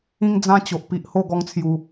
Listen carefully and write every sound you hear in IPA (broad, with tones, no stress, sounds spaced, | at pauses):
ĩ˦ ŋ d͡z ã˦ t͡ɕ o˨ ʔ p i˨ ʔ h o˥˧ ɡ ɔ˧ ŋ t͡sʰ j u˨˩